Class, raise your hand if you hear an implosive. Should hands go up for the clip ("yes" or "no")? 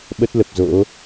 yes